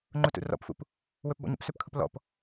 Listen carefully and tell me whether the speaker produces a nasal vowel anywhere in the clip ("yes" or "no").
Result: no